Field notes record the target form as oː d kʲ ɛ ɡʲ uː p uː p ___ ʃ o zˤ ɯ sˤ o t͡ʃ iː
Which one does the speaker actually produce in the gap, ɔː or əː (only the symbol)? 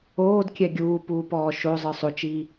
ɔː